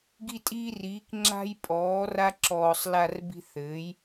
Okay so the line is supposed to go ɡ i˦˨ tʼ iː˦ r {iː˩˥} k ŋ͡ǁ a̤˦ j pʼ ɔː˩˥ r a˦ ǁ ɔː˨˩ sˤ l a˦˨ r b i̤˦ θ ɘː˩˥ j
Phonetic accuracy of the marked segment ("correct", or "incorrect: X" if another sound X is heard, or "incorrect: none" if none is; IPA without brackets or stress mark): correct